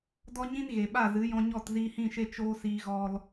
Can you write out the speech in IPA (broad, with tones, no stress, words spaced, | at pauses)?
dɔ˦ɲĩ˦n ɣe˨ɓa˦˨zɨ˨˦jɔ̃˧ ɲɔ˦˨tziː˧hĩ˦˨ʃe˦ t͡ʃoː˦siː˧ɣɔ˧l